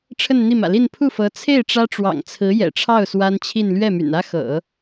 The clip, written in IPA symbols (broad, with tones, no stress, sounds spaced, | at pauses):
ʈ͡ʂʰ ə˥˧ n n̪ i˥˩ m ä̰˨˩ l i˥˧ n pʰ u˥˩ f ɤ˧˥ t͡sʰ e˥˩ ɪ̯ ʈ͡ʂ ä˥ ʈ͡ʂ w ɑ̰˨˩ ŋ t͡sʰ ɹ̩˧˥ j ɛ̰˨˩ ʈ͡ʂʰ ɑ˥˩ ʊ̯ s w a˥ n t͡ɕʰ i˥˧ n l ɥ ɛ˥˩ m y̰˨˩ n ä˥ x ɤ̰˨˩˦